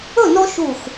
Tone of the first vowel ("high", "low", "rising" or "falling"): falling